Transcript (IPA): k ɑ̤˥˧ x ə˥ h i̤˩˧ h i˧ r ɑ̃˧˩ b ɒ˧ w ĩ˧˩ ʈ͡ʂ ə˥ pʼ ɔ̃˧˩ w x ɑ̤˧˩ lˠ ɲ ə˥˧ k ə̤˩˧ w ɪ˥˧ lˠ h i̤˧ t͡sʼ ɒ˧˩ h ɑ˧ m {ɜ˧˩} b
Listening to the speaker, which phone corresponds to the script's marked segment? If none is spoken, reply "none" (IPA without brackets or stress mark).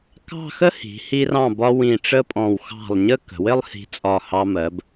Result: ɜ˩˧